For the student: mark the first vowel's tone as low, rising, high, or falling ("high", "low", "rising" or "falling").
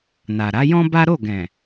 low